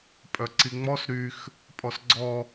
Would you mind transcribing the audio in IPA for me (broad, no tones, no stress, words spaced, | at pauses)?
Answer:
pʼœǀiŋ͡mɔs ɾyx | pʼɔsɡ͡ǀɔ